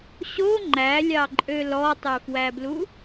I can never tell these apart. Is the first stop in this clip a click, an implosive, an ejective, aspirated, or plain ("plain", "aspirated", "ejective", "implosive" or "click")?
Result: click